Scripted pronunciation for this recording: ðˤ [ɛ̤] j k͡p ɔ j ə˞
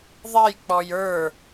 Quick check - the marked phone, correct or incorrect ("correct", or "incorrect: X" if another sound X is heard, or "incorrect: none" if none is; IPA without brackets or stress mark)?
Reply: incorrect: ɛ